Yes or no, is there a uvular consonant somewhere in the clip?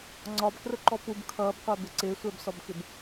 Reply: yes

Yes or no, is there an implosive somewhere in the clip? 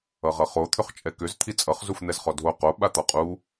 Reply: yes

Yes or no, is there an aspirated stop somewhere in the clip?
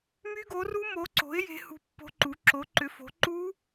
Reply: no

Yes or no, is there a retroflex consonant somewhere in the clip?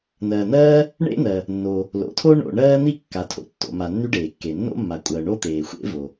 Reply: yes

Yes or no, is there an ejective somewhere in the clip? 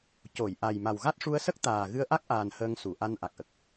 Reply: no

